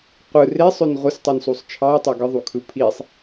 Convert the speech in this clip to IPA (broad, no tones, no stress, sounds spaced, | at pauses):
qʷ ɯ r e sˤ ø n ʁʷ ɯ s tˤ u n s u sˤ t͡ʃʰ ɑ ɪ̯ tˤ o ɡ ɯ ðˤ u kʰ ɯ pʰ i sˤ